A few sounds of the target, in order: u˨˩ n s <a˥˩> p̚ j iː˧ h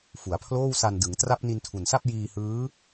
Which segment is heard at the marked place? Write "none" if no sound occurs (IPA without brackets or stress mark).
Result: a˥˩